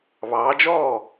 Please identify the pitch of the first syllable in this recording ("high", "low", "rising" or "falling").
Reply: rising